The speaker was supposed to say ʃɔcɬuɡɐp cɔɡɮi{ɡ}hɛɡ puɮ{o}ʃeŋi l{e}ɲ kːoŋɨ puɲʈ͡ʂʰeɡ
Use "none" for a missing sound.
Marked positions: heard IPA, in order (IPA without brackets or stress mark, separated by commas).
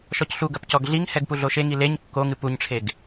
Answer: ŋ, o, e